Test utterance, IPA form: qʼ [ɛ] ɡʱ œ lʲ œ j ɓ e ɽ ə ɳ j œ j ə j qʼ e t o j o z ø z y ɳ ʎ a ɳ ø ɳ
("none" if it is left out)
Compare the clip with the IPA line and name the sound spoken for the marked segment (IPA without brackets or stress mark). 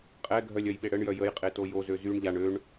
ɛ